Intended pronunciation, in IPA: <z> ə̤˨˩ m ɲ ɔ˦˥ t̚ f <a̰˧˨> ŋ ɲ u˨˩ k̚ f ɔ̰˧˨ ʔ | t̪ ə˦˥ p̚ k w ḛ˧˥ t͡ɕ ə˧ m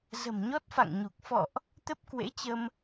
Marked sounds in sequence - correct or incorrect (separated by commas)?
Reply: correct, correct